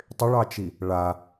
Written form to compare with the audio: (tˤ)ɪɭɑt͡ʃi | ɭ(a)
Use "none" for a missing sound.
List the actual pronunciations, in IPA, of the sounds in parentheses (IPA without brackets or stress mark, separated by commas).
tˤ, a